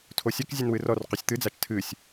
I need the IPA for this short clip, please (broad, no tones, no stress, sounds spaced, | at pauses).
tʰ o sʲ ɛ k zʲ ɛ n w ɨ r ɔ r q u sʲ t̪ ɨ d͡z a t͡ʃ tʰ ɨ sʲ